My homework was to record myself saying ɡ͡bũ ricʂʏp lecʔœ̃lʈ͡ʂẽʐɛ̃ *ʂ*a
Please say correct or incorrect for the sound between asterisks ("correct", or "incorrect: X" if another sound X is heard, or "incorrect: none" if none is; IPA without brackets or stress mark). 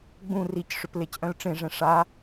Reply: correct